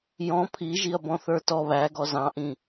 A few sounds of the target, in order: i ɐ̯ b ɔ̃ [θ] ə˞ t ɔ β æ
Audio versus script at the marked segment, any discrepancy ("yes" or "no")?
no